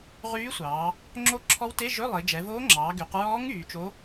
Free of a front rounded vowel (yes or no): no